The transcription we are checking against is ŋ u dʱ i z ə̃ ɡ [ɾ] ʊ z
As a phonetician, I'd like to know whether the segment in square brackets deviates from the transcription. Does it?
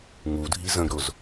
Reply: no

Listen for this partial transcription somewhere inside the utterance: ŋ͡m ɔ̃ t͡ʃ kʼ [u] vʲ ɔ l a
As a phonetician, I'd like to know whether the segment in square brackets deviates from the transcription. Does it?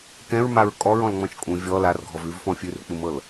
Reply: yes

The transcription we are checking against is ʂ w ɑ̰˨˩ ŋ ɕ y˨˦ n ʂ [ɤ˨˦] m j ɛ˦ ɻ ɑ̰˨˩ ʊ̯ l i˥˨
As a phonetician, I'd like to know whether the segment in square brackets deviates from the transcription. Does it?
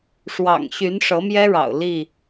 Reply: no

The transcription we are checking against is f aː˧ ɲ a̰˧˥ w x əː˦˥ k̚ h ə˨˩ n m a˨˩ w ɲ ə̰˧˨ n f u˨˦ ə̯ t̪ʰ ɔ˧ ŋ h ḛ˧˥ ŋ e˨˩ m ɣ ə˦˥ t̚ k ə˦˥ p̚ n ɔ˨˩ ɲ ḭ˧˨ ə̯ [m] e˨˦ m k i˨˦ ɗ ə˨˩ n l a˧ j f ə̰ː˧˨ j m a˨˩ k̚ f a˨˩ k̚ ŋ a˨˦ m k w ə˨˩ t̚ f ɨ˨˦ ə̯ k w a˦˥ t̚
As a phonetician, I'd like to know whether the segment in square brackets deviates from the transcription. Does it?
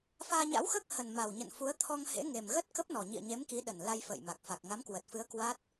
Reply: yes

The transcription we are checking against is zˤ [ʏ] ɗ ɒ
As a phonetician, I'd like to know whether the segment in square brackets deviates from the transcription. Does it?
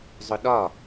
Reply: no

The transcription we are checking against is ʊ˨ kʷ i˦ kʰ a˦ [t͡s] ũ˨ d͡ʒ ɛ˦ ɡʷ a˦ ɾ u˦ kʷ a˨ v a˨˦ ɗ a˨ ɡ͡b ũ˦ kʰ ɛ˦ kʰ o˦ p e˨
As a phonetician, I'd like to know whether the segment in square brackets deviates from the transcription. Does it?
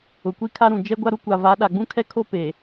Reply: yes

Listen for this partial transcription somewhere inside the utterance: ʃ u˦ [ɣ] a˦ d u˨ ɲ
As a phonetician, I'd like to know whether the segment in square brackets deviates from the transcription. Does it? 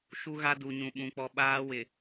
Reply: no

